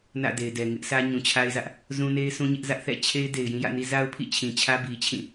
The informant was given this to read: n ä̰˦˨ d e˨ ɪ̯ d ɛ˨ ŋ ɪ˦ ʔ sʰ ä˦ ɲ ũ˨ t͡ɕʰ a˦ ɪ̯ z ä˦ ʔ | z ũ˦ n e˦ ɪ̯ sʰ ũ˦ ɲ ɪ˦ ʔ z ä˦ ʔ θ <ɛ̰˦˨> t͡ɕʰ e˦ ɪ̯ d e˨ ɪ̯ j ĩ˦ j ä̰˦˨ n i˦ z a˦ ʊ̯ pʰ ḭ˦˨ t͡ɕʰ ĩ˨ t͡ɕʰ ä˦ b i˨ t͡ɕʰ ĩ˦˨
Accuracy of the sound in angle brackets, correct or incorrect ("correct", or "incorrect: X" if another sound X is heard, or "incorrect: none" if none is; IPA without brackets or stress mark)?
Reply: correct